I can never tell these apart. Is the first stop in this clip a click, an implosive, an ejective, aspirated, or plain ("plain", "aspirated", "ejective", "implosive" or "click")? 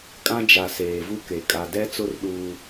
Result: ejective